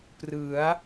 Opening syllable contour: rising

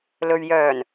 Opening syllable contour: low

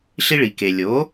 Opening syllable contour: high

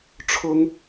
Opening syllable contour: high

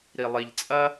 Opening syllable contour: low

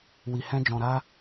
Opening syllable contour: low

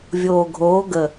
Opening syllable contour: low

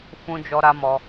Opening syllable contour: high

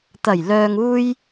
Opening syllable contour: low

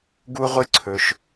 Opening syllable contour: high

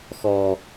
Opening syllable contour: low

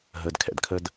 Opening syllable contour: low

